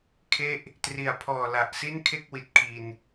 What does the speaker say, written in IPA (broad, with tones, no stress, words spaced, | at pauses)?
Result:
kʰe˥˩ʔ | tri˨˩a̯pʰɔː˨˩ la˨˩ʔsi˥˩n kʰe˥˩k̚wi˨˩t̚ kʰi˧n